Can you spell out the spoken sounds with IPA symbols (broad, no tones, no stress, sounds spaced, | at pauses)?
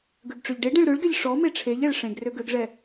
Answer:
ɡ ø ɡ ʈ͡ʂ ø ʎ ɖ e ɖ ẽ ɭ ɾ ø ɭ ɡ ɛ ʎ ʂ ɔ m e ʈ͡ʂʰ e ʎ ɛ ɭ ʂ ẽ ɡ r ø ɡ ø ɡ ʐ ɛ